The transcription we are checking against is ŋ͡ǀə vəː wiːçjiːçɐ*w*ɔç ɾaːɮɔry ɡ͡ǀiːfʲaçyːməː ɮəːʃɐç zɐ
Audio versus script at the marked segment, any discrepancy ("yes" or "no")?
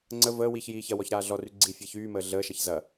no